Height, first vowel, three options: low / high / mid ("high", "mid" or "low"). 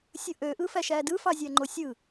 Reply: high